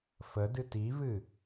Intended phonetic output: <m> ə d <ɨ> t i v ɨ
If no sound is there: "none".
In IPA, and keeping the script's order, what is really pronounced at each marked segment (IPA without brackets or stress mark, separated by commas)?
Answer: f, ɨ